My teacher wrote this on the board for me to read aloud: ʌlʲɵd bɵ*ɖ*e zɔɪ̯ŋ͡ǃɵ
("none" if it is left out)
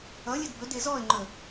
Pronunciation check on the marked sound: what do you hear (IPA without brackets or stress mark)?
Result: d